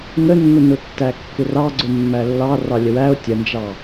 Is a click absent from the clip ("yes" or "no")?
no